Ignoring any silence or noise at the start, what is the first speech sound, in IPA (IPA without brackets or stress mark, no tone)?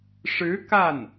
ʂ